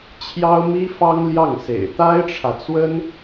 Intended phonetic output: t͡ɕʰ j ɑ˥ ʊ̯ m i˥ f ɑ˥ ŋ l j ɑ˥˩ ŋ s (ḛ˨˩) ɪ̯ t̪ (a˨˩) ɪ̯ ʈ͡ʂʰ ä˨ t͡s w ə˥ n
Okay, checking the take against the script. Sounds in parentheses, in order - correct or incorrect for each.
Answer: correct, incorrect: a˥

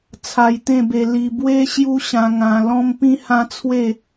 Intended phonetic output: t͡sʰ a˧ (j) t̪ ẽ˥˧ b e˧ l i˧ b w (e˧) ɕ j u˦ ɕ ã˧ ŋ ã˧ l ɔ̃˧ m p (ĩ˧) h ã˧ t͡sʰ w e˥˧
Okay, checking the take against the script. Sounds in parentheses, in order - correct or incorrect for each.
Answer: correct, incorrect: e˦, correct

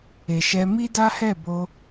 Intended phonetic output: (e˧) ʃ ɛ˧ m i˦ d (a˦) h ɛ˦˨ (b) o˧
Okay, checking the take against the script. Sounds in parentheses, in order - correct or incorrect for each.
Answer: incorrect: e˨, correct, correct

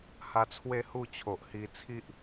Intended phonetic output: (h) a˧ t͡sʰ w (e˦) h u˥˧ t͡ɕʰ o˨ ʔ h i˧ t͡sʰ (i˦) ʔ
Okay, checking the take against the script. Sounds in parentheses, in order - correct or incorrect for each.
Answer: correct, incorrect: e˥˧, correct

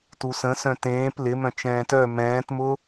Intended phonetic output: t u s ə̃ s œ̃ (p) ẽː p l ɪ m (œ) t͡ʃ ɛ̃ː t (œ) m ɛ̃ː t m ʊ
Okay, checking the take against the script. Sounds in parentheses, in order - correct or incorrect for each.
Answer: incorrect: t, incorrect: œ̃, correct

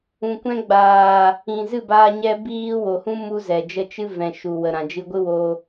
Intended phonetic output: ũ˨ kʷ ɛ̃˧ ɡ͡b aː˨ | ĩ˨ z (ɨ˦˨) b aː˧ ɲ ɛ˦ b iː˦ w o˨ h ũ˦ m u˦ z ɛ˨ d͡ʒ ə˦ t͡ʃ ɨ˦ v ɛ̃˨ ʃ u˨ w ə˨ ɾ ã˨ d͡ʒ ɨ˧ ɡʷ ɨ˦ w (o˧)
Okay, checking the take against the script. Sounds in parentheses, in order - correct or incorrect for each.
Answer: correct, correct

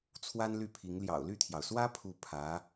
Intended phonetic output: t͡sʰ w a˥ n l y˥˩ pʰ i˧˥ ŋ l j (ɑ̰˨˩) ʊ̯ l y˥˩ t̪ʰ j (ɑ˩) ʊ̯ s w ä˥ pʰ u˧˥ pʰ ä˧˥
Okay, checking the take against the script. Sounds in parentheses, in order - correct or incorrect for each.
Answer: correct, correct

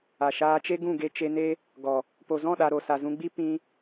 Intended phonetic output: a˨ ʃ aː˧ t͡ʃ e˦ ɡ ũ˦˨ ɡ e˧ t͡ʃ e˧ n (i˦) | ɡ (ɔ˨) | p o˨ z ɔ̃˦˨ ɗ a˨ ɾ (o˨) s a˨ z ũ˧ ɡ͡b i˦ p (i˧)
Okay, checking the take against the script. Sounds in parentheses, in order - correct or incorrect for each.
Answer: incorrect: e˦, correct, correct, incorrect: ĩ˧

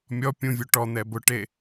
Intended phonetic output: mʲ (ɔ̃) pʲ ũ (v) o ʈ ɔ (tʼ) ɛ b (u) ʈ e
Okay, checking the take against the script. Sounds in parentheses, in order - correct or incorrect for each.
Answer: incorrect: ɔ, incorrect: vʲ, incorrect: n̪, incorrect: ʊ

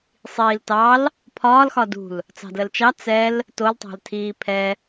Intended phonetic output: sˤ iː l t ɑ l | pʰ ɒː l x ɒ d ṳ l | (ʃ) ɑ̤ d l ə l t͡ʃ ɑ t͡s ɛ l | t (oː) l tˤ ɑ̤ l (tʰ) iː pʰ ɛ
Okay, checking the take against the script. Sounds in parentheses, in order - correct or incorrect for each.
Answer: incorrect: t͡s, incorrect: o, correct

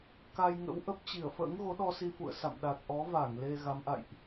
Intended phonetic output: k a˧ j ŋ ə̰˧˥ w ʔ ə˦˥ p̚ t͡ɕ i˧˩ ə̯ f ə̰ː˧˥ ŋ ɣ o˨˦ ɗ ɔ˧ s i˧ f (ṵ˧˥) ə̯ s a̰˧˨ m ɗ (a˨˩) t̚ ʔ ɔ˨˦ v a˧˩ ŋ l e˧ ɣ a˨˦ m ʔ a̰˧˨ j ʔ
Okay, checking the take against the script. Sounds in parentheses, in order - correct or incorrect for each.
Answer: incorrect: ṵ˧˨, correct

